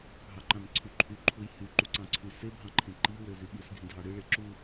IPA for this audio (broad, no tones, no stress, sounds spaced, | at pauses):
ɦ ɑ ǃ ɑ̃ n ǀʰ y ǃʰ y ǃʰ u j h y ǃ u ǀ ɑ̃ ǀʰ y s e bʱ ɑ̃ ǃʰ ẽ ǃ i w ø z y ɓ u s ɡʱ ĩ dʱ ɑ ɽ ɯ ɭ e ǁ u